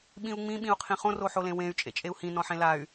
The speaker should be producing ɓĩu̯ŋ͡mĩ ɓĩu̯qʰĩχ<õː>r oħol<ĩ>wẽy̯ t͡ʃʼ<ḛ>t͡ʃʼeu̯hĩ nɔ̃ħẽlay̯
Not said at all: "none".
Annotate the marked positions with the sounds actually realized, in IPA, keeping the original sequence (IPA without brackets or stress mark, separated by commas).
õ, ẽ, ḛ